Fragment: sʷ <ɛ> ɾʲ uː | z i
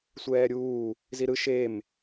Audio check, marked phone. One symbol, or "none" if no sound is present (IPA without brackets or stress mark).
ɛː